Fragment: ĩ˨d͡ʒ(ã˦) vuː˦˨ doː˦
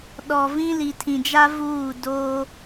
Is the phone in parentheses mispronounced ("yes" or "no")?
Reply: yes